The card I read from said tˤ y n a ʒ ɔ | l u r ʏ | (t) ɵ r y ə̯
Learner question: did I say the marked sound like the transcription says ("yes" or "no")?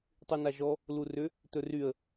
yes